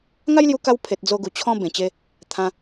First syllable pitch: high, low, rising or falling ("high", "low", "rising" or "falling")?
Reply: high